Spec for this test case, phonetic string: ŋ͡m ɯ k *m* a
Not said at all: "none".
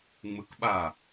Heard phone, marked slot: ɓ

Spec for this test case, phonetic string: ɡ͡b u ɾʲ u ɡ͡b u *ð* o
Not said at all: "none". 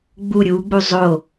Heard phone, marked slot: zˤ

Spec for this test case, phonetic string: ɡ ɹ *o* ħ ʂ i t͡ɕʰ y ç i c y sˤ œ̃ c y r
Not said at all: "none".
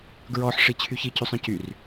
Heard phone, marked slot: ɔ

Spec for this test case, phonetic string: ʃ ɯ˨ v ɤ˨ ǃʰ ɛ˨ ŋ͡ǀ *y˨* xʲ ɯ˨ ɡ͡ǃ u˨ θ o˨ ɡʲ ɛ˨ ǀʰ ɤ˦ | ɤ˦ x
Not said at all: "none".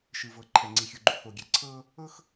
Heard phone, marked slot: i˨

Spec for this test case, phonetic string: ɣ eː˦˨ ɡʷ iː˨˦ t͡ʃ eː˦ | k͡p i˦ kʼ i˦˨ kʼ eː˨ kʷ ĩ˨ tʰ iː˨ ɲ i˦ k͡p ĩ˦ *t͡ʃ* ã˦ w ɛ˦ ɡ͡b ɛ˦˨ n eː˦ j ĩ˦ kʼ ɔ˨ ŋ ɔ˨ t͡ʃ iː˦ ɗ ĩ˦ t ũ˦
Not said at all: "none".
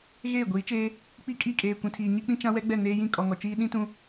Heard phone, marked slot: t͡ʃ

